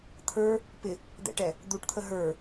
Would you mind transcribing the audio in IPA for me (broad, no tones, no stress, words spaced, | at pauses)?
t̪ʰə˞ | pɪ | d̪ɛ̰ʈɛ | d̪uʈt̪ʰə ɦə˞